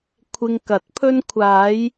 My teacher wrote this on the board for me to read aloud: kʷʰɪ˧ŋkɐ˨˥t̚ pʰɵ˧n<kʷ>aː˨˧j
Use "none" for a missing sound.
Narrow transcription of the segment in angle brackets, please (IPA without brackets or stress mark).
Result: kʷʰ